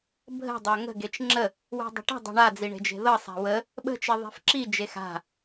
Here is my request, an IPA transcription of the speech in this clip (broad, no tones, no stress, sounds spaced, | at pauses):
bʱ ə̤ dˤ a ŋ ə̤ ɡ e t͡ʃ ŋ͡ǁ ə | w e̤ dˤ ə̤ ʈ ə̤ dˤ e̤ ɳ a d͡z i ɳ e̤ d͡ʒ e̤ ð ɤ sˤ a̤ w ə | ɓ ə̤ t͡ʃ i ðˤ e̤ f ǁ i d͡ʒ e x a̤